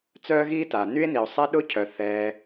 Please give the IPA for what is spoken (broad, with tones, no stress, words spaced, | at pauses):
t͡sœː˥ɣiː˥ta˩ ny˥e̯ni˩o̯ sˤɛ˥ɗʊ˥cʰœ˩ θɛː˩